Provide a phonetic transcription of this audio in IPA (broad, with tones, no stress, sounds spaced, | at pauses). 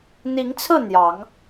n̪ i˨˦ ŋ t͡sʰ ɹ̩˥˨ n̪ j ɑ˨˦ ŋ